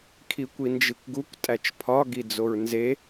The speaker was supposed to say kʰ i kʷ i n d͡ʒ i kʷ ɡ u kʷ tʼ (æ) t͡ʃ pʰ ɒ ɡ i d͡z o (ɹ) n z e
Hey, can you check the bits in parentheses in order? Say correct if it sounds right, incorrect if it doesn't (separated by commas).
correct, correct